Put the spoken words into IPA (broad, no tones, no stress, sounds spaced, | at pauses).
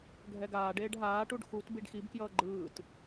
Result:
ɡʱ ɛ ɡ aː ɖ eː ɖ ɦ aː ʈ u ɖ x u t b i ɖ x i b k j ʌː ɡ͡ǃ ɯː t